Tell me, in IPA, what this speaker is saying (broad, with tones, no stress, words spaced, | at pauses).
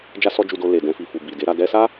d͡ʒa˦sɔ˦d͡ʒu˧do˧ le˨dɛ̃˧fi˨fu˨ bi˨de˨˦ɾa˧ dɛ˧sa˦